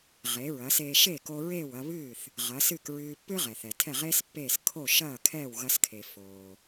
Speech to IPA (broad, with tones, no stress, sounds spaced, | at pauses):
ʁ e˩˥ ɹ ɐː˩˥ s eː˧ ʃ eː˥˩ k o˧ ɹ eː˥˩ w ɐ˧ β ɨː˥˩ θ | ʁ ɐ˩˥ s ɨ˥˩ k ɹ ɨː˧ pː ɨ˥ ʁ ɛ˩ θ ɛ˩ tʰ ɛ˥˩ ʁ eː˥ s pː eː˥˩ s kʰ o˥˩ ʃ ɐː˥˩ kʰ ɛː˥˩ w ɣ ɐ˧ s kʰ e˩ f oː˩